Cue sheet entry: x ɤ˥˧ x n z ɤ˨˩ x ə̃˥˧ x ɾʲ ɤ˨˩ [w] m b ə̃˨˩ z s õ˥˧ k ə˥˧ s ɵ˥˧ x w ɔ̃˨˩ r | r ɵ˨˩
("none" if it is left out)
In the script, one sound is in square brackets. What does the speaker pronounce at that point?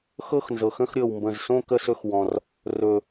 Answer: w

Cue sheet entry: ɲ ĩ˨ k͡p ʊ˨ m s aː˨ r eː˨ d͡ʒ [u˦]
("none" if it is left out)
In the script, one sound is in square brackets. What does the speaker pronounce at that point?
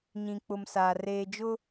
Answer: ʊ˦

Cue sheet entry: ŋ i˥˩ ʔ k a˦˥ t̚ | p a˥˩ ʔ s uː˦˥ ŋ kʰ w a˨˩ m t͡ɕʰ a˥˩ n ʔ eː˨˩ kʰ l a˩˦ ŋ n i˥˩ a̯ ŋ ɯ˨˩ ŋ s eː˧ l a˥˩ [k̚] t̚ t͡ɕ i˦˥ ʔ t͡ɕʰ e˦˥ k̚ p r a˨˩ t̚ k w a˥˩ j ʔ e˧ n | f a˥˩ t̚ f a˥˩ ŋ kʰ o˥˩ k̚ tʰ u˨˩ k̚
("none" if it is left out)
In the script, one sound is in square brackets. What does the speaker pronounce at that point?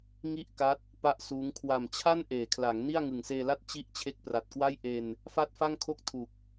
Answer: none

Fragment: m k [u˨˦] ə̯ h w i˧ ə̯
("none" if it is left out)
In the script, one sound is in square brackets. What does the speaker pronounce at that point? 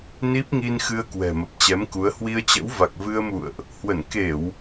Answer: u˨˦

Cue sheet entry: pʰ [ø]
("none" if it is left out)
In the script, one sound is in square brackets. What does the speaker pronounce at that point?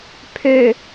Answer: ø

